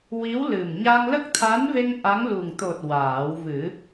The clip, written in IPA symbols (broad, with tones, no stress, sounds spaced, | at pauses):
w i˧˥ w l ɨ˨˩ m ɲ a˧ ŋ l ə˦˥ k̚ t̪ʰ a˧˥ n v e˧ ŋ ʔ a˧˥ ŋ l u˨˩ ŋ t̪ o˨˩ t̚ w aː˨˩˦ w v ɨ˨˩˦